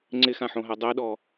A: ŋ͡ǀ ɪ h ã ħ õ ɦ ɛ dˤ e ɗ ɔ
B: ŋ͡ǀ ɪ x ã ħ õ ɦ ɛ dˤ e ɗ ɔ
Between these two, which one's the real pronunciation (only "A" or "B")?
B